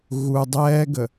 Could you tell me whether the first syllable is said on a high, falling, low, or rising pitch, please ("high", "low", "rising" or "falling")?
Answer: low